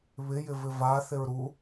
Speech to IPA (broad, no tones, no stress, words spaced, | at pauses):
βɪjɪvɪ vaθɪɹ ɾu